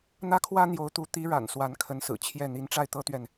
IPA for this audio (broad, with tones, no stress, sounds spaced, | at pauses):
n̪ ä˥ kʰ w ä˥ n̪ j o˧˥ ʊ̯ t̪ u˧˥ t̪ i˧˥ ɻ a̰˨˩ n s w a˧˥ n kʰ ə˧˥ n s ɹ̩˨˩ t͡ɕʰ j ɛ˥˩ n̪ i˧˥ n ʈ͡ʂ a˥˩ ɪ̯ t̪ ɤ˥ t̪ ɥ ɛ˨ n